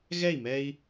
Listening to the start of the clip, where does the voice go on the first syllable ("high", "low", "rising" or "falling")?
falling